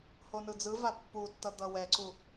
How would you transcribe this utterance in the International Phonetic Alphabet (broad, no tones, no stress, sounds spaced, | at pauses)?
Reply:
h o n ɯ d͡z ɯ v a pː u tː ʌ d̪ ʌ w ɛ ǀ u